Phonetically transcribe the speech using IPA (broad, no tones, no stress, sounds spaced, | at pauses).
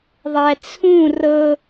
ðˤ æ t͡sʰ ũ r ɤ